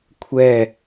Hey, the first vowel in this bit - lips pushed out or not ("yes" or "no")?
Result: no